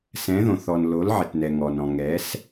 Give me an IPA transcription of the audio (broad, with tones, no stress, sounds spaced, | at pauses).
s ɛ̃˨˥ ð õ˨ θ ɔ˨ n l o˨˥ l ʕ ɪ˨ t n ɛ˨ ŋ ɔ˨ n ɔ̃˨ ŋ ɛ˨˥ s